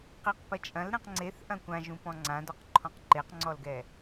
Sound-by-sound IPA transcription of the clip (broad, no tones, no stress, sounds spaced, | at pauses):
q i q p ɐ t͡ʃʼ ɐ̃ l ɾ ɛ̃ q ŋ͡ǀ e θ ʔ ɐ̃ kʷ ã ʒ ũ p ɔ̃ ŋ͡ǀ ã d ɔ q ǃʰ ɔ̃ q ǃ e q ŋ͡ǀ ɔ l ɡ ɛ